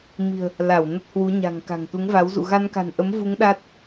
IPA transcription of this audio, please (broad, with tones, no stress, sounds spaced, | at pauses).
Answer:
m i̤˨˩ ə̯ | l a˧˩ w n ə˦˥ t̚ h w u˨˦ ɲ a̤˨˩ ŋ k a̤˨˩ ŋ t̪ u˨˦ ŋ v a˨˦ w z ṵ˧˨ ɣ a˧ n k a̤˨˩ n ʔ ə˨˦ m v u˨˦ ŋ ɗ a˦˥ t̚